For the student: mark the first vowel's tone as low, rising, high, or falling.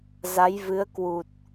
rising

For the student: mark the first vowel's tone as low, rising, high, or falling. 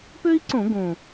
high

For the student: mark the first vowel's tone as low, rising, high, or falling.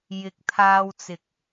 low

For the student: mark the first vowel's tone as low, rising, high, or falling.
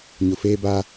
low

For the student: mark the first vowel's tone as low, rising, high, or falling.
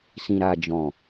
low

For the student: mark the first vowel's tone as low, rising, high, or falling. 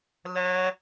high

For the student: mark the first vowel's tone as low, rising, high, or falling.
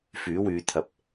rising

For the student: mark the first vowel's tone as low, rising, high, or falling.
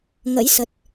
rising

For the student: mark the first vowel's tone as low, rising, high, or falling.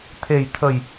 low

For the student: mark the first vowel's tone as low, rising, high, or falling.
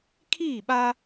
falling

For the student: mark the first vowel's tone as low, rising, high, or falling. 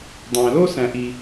low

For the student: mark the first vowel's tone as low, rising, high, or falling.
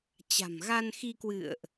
low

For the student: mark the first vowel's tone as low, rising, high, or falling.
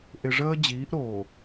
low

